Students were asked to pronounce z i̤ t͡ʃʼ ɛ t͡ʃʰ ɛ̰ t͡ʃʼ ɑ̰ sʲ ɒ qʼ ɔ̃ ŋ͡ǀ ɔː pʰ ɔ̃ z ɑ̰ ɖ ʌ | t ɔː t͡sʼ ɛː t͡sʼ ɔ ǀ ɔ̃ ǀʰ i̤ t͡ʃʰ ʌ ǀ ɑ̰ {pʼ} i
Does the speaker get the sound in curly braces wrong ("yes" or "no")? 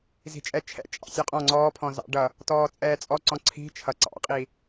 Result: yes